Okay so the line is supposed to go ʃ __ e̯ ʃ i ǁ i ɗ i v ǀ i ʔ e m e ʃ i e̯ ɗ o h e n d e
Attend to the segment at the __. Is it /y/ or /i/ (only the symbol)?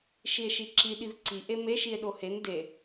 i